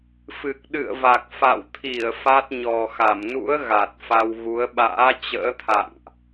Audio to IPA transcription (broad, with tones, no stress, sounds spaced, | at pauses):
f ɨ˨˩ k̚ ɗ ɨ̰˧˨ ə̯ v a˨˩ k̚ f a̰˧˨ w t̪ʰ i˧˩ ə̯ f a˦˥ t̚ ɲ ɔ˨˩ x a˧˩ m n ṵ˧˥ ə̯ ɣ a˨˩ t̚ f a˧ w ɣ u˨˦ ə̯ ɓ a̰ː˧˥ t͡ɕ ə̰ː˧˥ t̪ʰ a̰˧˨ ŋ ʔ